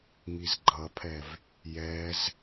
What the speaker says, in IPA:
ŋizɡ͡ǃʌpʰɛv | jɛz

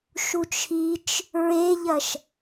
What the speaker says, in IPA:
ʃut͡ʃʰit͡ʃ | ɹeʎɐʃ

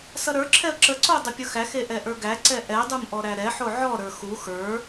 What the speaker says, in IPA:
sʌɾə˞ǁʰɛə̯ ǁəǀo dˤəpʲʌxæxe ʔɛʔə˞ɡæǀɛ ʔɛdˤum ʔɔɾæɾɛħo ʕɔɾə˞ xu xə˞

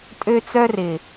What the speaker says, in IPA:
tʼø˦t͡sœ˦rɪ˨

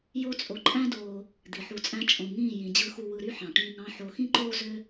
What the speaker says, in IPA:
jo˦t͡sʼo˧ ǃʼæ̃˦doː˧ | d̪i˨ħu˧t͡sʼæ̃˦ t͡ʃʼõ˨ŋĩː˦˨jĩ˨ d͡ʑɯ˧xu˧ wɯ˧ɾy˦ħɑ̃˨ʈĩː˧ŋ ɑ̃˦ħo˧ xĩ˦ǃoː˦ zø˦

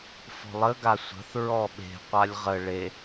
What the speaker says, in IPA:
fɔ̤lˠə ɡasʷə̤θ ɹɔɓe̤ qʷalʲʁə ɭe

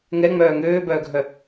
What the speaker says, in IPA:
ŋɛŋ͡mœː ŋøːbœːɡʱœ

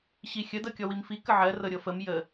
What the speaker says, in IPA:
ɕixʲə dɤkʲɔwimfi kəʕɜ rɤɾʲɤfəm jə

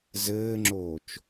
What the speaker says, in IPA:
zɘːŋ͡ǁoːt͡ʃ

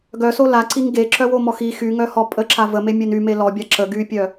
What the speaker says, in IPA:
ɡœso laǀiŋ ɡeǁœwomɔx i xyŋœhɔ pʼəǁa vəmemʲøn yme lɔbʲa ǁə ɡypʲœ

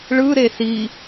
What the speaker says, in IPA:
ɭɯɾe si

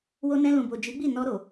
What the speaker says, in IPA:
wo˧nɛ̃˧lũ˨bo˨ d͡ʒi˨˦ɡ͡bi˦˨ nɔ˧ɾo˨

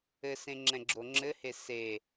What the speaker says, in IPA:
ɘsẽŋ͡ǁɛ̃ɡ͡ǁo ŋ͡ǁɘhe se

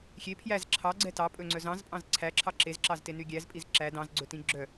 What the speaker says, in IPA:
xʲe pʰjæz ǁʰɑɡ͡ǀɛ tɑpʼɵŋ͡ǀœz ɑ̃zpʼɑ̃z ǀʰæǁʰɑ ǁezǁɑzteny ɡʲæzpʼiz ǁæ dɑ̃zɡ͡ǀɵtĩ ɡ͡ǁœ

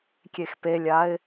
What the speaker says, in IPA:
kʲexpelʲaɪ̯

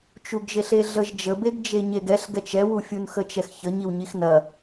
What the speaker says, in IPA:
t͡ʃuɡʒeɬeɮəʒ d͡ʒəbeɡ d͡ʒeɲeɡɛɬ ɡɛt͡ʃɛwu fʲunxət͡ʃɛxçə ɲiwɲixnɐ

